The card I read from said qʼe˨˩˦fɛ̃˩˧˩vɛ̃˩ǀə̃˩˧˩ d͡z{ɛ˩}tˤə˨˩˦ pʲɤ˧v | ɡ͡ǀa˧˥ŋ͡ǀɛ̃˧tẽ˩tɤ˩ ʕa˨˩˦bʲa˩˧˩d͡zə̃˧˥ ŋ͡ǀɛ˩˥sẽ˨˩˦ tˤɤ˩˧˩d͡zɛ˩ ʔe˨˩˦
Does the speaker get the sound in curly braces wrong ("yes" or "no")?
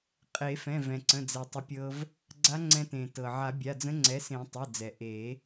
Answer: no